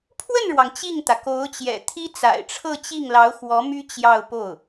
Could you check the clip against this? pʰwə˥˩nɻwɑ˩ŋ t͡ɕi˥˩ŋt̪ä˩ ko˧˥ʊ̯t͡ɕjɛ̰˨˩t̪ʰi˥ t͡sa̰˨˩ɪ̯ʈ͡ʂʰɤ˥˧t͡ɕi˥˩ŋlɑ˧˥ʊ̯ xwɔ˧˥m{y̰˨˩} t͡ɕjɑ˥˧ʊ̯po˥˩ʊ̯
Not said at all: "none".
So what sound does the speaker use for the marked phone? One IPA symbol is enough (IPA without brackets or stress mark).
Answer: y˥